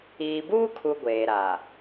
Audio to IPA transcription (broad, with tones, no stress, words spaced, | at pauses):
iː˨buː˦kʰu˨ ɡʷeː˨ɾaː˨